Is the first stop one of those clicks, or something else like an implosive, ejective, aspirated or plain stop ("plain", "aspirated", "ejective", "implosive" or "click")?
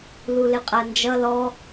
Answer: ejective